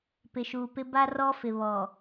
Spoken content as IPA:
p ɪ˨ ʃ uː˨ p ɪ˦ b a˦ r ɔ˦ f ɪ˨ β ɔ˨

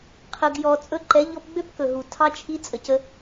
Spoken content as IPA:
qʰ ə˨ ɡ j ɔ˨ t͡sʼ ɵ˧ ǃ ɛ˨˦ ʎ ɔ˧ p ɡ͡b ø˦ p k ɵ˨ ɦ u˨ tʰ ɑ˧ t͡ʃʰ i˧ t͡sʼ ə˨ c ə˧

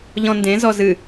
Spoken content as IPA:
ʎ ɔ̃ n d ẽ z ɔ z ɨ

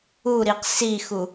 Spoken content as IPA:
u ɾ i q s i x u

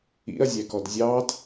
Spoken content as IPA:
ḭ ɐ̯ zʲ æ k ɔ d zʲ ɑ d

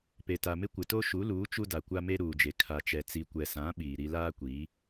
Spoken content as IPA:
p e˨ t a˨ m ɪ˦ kʷ ɪ˨ t o˦ ʃ u˨˦ l uː˨˦ t͡ʃ u˦ d a˨ kʷ a˦ m e˦ ɾ uː˨ d͡ʒ e˨ kʰ a˨ t͡ʃ ɛ˨ t͡s i˨ kʷ ɛ˨ s ã˨˦ ɓ iː˨ ɾ i˦ l aː˦ kʷ iː˨˦

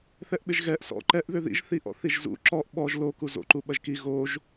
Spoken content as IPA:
θ ɛ ʔ ɓ ɪ ʒ ɣ ɛ ʔ s ɔ̰ ǃ ɛ ʔ ð ʏ ð ḭ ʒ θ i ʔ ɔ̰ θ i ʒ z ṵ ǁ ɔ ʔ ɓ ɔ ʒ l o k u z o̰ ǃ u ɓ ɐ ʒ k i ɣ o ʒ

